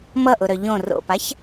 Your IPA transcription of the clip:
m ʌ ʔ ʊ ɾ œ ʎ õ r o̰ p a ç

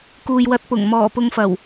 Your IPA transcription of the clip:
k uː˨ j w ɐ˨˥ t̚ p ʊ˨˩ ŋ m ɔː˨˩ p ʊ˨˧ ŋ f ɐ˨˩ w

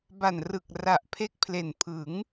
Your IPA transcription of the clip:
b a˨˩ n r ɯ˨˩ k̚ r a˨˩ ʔ pʰ e˦˥ k̚ pʰ l e˨˩ n pʰ ɯ˩˦ ŋ

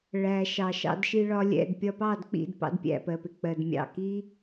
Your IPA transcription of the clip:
ɭ æ˨ ʃ ɑ˨ ʃ ɑ̰˧ d ʃ i˧ ɭ ɒ˧ lʲ ɛ̰˦˨ d pʲ ɒ˧ p ɑ˦˨ d k͡p ḭ˦˨ d p ɑ̰˧ d pʲ æ̰˦˨ p ɜ˨ p ɪ˨ k͡p ɜ˨ d mʲ ɑ̰˦˨ k i˦

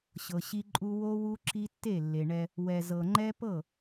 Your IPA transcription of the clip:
ɕ ɤ˨ ɕ i˦ ǃʼ u˦ w o˦ w u˦ ǁ i˦ tː e˦˨ lː e˨ ɳ ɛ˦ | w ɛ˨ z ɤ˨ ŋ͡ǃ ɛ˦ p ɤ˦˨

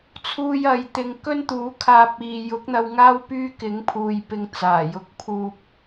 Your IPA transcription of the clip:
t͡sʰ uː˧ j ɐ˨˧ j t̪ ɪ˨ ŋ k ɵ˥ n t̪ uː˨˥ kʰ aː˧ p̚ iː˨ j ʊ˨˥ k̚ n̪ ɐ˧ w ŋ aː˥ w p yː˥ k ɪ˨˥ ŋ pʰ uː˨ j p ɪ˧ ŋ t͡s aː˨˩ j ʊ˧ k̚ pʰ uː˨ p̚

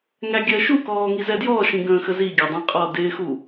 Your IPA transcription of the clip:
ŋ æ ɡʲ ɜ ʃ u k ɔː ŋ i z ɛ d j ɔː ʃ ĩ ɡ ə̃ː x ə z i ɡʲ æ dˤ ĩ qʼ ɔː d ɪː x u

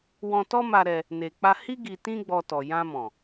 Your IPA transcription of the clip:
w ɔ̃˧ t ɔ˦ m a˧ ɾ ɛ˧ | n e˨ k͡p a˧ h i˦ ɡ i˧ t ĩ˦ ɡ͡b ɔ˧ t ɔ˨ j ã˧ m ɔ̃˨

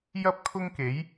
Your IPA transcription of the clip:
j ɐ˥ p̚ kʰ ʊ˥ ŋ k e˨˥ j

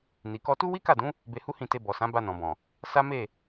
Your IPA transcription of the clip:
n i˨ k ɔ˧ t u˦ w i˦ k a˦˨ d ũ˨˦ | b e˧ h u˦ h ĩ˦˨ t e˧ b ɔ˨ s ã˨˦ b a˧ n ɔ̃˨ b ɔ̃˨ | s a˦ m e˦˨

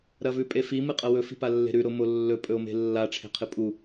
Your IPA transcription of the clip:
ɾ ɐ v ʉ pʼ e f i m ɨ qʼ ɐ w ɵ f i̤ p a lː e̤ ɾ ʉ ɾ o m o lː ɵ pʼ ɵ o̯ m e̤ lː a ʈ͡ʂʰ e̤ qʰ ɨ pʼ u

